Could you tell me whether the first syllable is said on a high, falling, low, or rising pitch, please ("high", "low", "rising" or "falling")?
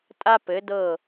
high